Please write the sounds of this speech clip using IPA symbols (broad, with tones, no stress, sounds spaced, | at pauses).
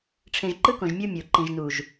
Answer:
ʈ͡ʂʰ ẽ˨ ʒ ǃ ɯ˦ k õ˨ ʒ mʲ u˦ mʲ o˨ ǃ ĩ˨ ʒ n u˨ ʒ